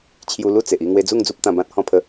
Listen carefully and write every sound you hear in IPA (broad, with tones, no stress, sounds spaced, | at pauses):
t͡ɕʰ j u˧ l u˥˧ t͡s e˨ ʔ i˥˧ ŋ w e˧ d͡z u˥˧ ŋ d͡z u˦ p̚ t̪ ã˧ b ã˦ t̚ h ɔ̃˥˧ pʰ ə˦